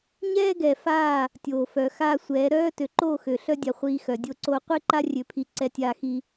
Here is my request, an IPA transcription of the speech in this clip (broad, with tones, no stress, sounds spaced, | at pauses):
ɲ ɛː˦ ɡ ɛ˨ f aː˦˨ | tʲ oː˨ f œ˨ x aː˦ sʷ ɛː˨˦ ɾ œː˦ t ø˨ ǃ oː˦˨ x ø˨ ɬ œ˦ dʲ a˨ χʷ iː˨ x œ˨ dʲ o˦˨ ǀ oː˦ qʷ i˦ ǃ a˦ rʲ ø˨ pʰ i˨ ǀ ɛ˦ tʲ aː˦ x iː˦